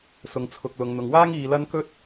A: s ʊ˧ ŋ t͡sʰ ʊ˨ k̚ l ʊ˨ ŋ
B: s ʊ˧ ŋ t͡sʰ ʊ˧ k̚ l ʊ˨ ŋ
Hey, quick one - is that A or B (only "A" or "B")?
B